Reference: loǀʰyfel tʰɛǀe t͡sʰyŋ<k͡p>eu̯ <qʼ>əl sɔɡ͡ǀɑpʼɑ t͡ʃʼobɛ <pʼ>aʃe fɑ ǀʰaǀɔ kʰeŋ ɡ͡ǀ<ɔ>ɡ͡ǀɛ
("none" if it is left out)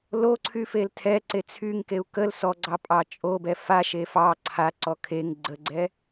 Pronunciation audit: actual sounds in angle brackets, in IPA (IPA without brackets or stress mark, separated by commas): k, k, f, ə